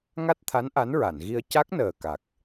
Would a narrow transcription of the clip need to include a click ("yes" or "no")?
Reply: no